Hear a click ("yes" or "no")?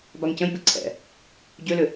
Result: yes